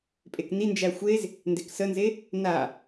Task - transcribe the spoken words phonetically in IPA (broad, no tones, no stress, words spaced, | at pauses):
pʼeknind͡ʒæ xʷez | ndeksənze | na